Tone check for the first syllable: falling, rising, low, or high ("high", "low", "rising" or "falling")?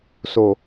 low